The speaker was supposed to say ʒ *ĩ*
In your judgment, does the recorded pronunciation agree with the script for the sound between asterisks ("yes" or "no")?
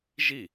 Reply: no